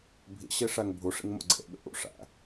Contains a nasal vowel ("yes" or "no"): no